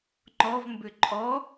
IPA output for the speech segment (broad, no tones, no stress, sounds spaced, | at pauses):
ŋ͡ǃ ɔ v m b ʏ ǃʼ ɔ